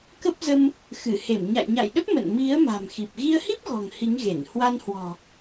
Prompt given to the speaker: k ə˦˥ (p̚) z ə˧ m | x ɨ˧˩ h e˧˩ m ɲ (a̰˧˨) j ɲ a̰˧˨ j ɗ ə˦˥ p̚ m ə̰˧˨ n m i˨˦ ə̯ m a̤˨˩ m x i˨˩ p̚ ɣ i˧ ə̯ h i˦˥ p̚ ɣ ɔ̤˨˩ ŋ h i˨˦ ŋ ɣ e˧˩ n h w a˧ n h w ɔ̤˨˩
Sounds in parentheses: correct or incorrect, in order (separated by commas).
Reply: correct, correct